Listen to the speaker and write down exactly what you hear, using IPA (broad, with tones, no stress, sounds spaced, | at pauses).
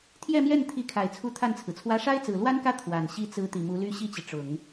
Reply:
t̪ʰ j ɛ˥˧ m j ɛ˥˩ n t̪ʰ i˧˥ kʰ a˨˩ ɪ̯ t͡sʰ u˧˥ t̪ʰ a˥˩ n t͡sʰ ɹ̩˩ t͡sʰ w ä˥ ʂ a˥ ɪ̯ t͡s ɹ̩˨˩ l w a˥ n k ä˥˩ t̪ʰ w a˨˩ n ɕ i˧˥ t͡s ɹ̩˧˥ t̪ i˨˩ m u˧˥ l y˥ ɕ i˥˩ t͡ɕ i˩ ʈ͡ʂ ʊ˨˩˦ ŋ